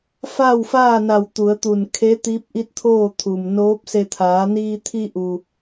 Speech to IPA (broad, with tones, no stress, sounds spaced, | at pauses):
f aː˥˨ w f aː˥˨ n a˧˩ w t̪ u˩˧ ə̯ t̪ u˧˩ n kʰ e˧˥ t̪ i˧˥ p̚ ʔ i˧˥ t̚ t̪ʰ oː˥˨ t̪ʰ u˩ m n oː˧˥ p̚ s e˧ t̪ʰ aː˩˧ n iː˧ t̪ʰ i˧ ʔ u˩